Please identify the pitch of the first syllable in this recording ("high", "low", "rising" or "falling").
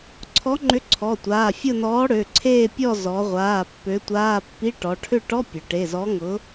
rising